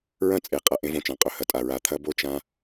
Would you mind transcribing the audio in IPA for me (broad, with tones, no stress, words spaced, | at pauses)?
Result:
ɹɐ̃˦˨t͡sʼe˨qʼɐ˨ ʔẽ˦võ˨t͡ʃã˨ qʼɵ˨hɐ˨tʼa˨ ɹa˨t̪ʰɐ˦bo˦ t͡ʃã˦